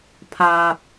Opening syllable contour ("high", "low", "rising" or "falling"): low